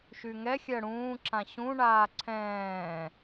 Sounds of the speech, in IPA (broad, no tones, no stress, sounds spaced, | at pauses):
ʃ y ŋ ɛ xʲ ɜ ɽ ũː ǁ ã ɕ ũ ɳ aː ǀʰ ɛ̃ː